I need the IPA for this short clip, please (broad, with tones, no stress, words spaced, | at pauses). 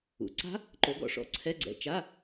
ṵ˩˧ ǀa̤˦˥ | ǃo˨˥ɡɔ̰˩˧ʂɔ̰˨˩ ǀʰɛ˧˥˧ɡ͡ǀɛ̰˨˩ t͡ʃa˧˥˧